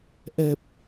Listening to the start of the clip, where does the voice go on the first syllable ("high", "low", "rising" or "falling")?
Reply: low